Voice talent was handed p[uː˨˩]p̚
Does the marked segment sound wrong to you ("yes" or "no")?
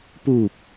no